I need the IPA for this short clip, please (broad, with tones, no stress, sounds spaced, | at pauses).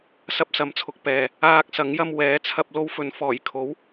s ɐ˧ p̚ s ɐ˨˥ m t͡sʰ ʊ˨ k̚ p ɛː˨ | aː˧ k̚ s ɐ˨˥ ŋ j ɐ˧ m w ɛː˨˥ t͡sʰ ɐ˧ p̚ l o˧ w f ɵ˨˧ n f ɔː˨˩ j kʰ o˨˥ w